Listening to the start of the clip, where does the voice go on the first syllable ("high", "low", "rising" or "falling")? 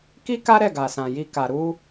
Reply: high